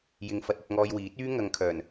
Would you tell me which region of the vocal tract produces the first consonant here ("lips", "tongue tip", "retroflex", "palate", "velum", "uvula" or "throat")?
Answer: palate